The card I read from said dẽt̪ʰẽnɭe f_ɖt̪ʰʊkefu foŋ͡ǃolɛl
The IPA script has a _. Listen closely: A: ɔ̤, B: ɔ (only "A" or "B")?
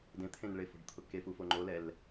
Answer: A